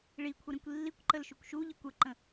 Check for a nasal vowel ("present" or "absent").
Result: present